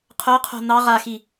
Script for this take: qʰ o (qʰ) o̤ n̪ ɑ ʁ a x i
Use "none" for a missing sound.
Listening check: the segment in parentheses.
qʰ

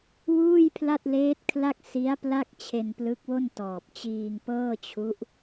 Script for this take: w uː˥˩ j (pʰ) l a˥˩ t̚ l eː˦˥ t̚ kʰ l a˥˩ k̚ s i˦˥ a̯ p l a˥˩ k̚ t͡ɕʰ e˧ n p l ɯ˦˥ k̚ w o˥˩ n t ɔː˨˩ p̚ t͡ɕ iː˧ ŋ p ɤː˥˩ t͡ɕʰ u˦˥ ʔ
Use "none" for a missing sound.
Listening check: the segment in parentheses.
pʰ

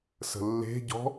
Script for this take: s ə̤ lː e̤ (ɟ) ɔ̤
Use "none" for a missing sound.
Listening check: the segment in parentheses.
ɟ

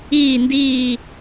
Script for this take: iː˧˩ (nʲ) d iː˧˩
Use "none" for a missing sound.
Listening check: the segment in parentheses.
n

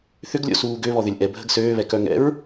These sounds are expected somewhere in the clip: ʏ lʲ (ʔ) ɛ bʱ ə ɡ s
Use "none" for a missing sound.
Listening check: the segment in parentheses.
ʔ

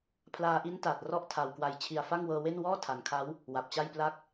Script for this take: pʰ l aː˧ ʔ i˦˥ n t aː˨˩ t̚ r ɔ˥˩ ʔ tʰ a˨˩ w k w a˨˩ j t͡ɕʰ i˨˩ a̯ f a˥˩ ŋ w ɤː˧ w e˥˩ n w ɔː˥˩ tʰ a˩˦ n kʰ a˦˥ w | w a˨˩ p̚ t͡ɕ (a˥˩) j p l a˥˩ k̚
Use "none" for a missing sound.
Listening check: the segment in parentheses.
a˥˩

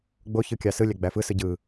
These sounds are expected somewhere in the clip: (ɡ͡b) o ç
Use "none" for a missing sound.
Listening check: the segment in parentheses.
ɡ͡b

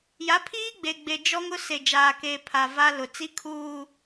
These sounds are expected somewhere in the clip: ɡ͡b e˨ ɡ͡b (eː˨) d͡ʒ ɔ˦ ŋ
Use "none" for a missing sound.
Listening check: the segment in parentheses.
e˨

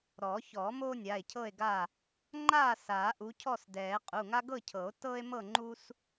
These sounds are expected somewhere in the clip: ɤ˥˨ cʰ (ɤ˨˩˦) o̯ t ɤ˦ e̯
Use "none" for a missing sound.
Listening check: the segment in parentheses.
ɤ˨˩˦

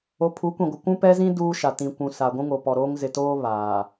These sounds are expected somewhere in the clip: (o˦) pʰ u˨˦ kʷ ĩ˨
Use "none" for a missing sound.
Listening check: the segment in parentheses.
o˨˦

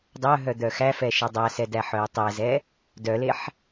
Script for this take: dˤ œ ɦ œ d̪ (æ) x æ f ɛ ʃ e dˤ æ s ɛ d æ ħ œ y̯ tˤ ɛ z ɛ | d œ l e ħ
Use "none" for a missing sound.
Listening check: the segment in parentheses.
œ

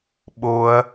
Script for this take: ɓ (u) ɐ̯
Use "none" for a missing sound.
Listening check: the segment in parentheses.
o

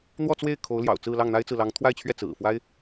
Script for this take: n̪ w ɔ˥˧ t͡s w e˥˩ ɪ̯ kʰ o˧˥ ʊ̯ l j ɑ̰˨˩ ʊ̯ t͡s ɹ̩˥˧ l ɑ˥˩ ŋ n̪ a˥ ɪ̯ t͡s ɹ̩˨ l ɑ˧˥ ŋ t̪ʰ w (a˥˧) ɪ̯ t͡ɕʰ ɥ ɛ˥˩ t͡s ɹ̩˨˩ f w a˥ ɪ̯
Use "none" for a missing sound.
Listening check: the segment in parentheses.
a˥˧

